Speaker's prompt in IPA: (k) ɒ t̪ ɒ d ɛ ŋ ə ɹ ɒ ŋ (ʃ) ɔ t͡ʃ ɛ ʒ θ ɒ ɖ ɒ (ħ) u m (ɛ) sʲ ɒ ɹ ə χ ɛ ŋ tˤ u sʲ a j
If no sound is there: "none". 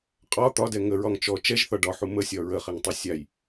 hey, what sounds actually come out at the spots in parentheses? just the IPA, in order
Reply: qʼ, t͡ʃ, ħ, ə

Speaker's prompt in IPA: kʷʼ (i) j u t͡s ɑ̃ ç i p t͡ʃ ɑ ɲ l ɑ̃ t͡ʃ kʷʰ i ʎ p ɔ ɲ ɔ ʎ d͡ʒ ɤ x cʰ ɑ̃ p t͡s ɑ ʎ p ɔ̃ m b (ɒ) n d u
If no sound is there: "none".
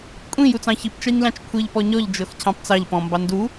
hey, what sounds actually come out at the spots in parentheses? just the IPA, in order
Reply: ĩ, ɑ

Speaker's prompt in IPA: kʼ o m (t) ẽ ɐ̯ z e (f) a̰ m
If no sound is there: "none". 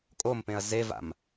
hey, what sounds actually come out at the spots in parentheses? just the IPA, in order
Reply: p, v

